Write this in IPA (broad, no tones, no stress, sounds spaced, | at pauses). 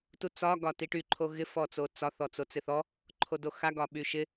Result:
t u t͡s ɒ ɡ ɒ t i ʈ y ǃʰ o ɣ ɪ f ɔ t͡s o t͡s ɒ θ ɔ t͡s o t͡s ɪ θ ɔ | ǃʰ o d o x a ɡ ɒ ɓ y ʃ ɪ